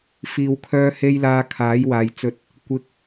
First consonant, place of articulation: labial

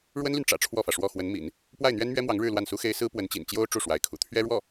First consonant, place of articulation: retroflex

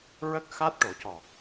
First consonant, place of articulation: alveolar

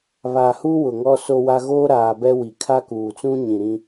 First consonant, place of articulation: labial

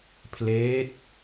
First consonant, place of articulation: labial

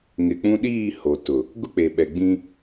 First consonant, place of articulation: velar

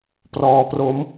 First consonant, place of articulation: labial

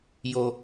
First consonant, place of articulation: palatal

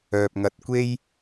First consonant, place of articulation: labial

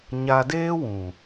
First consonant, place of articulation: palatal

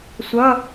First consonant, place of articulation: alveolar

